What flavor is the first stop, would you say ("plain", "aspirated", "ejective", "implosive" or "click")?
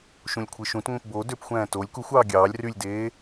aspirated